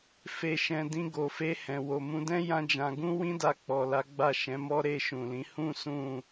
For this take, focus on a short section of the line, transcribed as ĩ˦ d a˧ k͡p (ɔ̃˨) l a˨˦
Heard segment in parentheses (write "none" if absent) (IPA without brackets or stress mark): ɔ˨